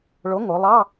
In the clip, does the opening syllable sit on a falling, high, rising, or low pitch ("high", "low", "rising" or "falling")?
rising